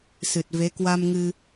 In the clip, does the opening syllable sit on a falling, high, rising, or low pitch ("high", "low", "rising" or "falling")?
low